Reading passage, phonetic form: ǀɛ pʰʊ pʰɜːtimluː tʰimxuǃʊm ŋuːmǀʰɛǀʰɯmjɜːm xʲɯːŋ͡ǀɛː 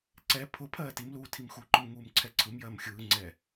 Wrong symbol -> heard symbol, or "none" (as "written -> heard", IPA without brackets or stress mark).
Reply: none